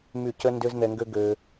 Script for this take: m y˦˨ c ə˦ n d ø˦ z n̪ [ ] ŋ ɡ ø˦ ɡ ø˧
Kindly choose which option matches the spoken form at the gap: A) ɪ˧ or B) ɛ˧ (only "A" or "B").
B